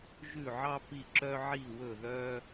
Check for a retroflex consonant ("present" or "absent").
absent